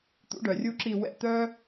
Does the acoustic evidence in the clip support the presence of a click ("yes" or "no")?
yes